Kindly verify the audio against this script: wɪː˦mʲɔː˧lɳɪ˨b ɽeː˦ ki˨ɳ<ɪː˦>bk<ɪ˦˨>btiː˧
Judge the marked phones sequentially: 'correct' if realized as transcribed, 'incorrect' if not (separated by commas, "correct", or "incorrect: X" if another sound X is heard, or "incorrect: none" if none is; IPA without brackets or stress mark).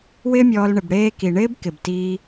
correct, incorrect: ɪ˨